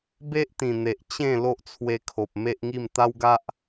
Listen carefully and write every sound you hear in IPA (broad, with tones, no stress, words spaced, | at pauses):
be˦ʔt̪ĩ˨˩n̪e˨ʔ t͡ɕẽ˥˧ lo˦ʔt͡sʰwe˧kʰo˨p̚ me˦ʔŋi˥˧m t̪a˦wɡa˦ʔ